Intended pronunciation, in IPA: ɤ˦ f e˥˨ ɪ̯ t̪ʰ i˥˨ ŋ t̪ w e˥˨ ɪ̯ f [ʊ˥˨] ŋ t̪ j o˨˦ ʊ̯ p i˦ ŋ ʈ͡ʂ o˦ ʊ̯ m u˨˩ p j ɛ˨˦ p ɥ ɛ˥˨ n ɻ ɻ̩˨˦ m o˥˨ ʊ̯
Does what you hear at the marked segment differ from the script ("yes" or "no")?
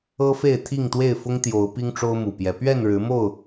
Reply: yes